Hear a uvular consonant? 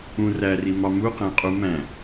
yes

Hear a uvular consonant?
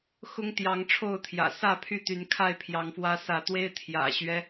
no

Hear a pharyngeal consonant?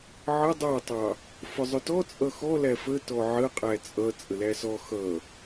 yes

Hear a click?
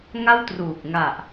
no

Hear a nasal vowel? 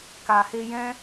yes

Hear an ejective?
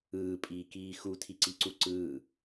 yes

